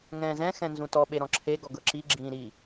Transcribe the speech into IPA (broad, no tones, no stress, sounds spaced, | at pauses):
ŋ ɛ̃ː z ɛ̃ x ɛ̃ n z ũ t ɔ ɓ e ɾ ɔ̃ ǁʰ e ɡ ɔ ɡ ɤ ǁ i ɡ͡ǁ ĩː ɾ i